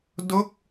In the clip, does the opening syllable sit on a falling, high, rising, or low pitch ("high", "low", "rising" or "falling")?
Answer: falling